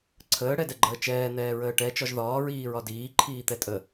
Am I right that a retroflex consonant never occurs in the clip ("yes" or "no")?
no